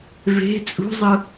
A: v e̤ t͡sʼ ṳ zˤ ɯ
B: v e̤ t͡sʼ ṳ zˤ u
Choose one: A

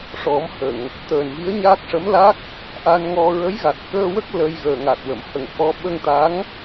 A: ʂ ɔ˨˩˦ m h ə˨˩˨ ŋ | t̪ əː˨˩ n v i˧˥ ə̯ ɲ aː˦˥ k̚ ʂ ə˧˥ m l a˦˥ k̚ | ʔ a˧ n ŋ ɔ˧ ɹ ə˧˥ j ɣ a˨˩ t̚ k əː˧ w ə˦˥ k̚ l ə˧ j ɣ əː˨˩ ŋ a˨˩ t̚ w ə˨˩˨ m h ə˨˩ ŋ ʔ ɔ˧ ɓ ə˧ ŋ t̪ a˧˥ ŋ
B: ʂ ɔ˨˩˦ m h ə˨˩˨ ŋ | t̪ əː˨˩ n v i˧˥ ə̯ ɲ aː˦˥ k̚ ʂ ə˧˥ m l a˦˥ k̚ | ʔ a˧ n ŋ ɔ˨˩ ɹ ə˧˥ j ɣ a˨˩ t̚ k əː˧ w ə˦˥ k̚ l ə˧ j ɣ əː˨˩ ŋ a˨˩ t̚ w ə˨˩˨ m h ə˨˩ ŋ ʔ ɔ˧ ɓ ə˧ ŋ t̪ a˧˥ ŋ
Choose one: A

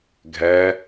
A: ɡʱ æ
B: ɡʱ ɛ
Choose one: B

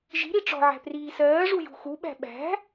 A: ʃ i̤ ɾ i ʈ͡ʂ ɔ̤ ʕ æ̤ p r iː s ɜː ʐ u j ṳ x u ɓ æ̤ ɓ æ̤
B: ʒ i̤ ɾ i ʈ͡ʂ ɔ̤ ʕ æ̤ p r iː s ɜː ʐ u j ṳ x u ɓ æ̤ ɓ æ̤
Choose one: B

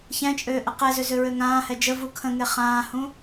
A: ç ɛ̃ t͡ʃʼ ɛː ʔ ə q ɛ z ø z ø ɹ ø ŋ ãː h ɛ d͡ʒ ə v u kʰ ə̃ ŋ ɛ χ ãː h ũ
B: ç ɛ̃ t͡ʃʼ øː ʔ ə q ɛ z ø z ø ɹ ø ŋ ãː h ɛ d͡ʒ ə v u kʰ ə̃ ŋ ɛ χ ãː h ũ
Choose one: B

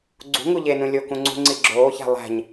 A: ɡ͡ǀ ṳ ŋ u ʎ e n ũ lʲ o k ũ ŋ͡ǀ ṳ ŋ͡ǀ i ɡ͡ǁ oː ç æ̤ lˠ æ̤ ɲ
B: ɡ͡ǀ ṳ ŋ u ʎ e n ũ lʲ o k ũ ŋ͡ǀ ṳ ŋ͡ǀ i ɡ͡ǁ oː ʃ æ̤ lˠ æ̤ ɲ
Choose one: A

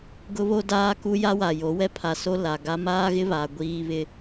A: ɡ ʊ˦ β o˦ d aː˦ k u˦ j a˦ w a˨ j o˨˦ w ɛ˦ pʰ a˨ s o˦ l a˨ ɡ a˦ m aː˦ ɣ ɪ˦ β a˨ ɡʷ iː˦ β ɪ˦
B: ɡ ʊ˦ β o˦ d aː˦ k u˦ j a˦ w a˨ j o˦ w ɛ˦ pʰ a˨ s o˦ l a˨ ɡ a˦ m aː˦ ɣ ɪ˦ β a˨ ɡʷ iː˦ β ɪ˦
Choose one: A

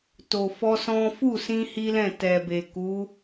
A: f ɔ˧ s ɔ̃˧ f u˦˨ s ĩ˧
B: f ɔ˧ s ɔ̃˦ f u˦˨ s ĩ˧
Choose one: B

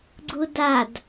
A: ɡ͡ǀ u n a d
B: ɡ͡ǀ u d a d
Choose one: B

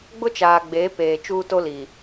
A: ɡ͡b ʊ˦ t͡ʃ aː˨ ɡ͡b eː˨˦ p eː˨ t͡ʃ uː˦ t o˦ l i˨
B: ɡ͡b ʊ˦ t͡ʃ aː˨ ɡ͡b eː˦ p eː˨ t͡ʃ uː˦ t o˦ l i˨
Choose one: A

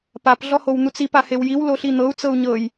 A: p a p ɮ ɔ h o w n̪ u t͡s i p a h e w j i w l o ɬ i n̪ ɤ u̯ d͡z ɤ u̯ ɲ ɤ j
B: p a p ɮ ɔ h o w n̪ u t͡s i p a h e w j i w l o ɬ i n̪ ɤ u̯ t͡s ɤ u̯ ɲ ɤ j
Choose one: B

